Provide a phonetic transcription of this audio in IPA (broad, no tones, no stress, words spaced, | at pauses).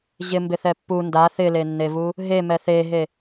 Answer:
ʑɪmbɪθɛ pːu nda θɪlenːevu | ɦemɛ θeɦe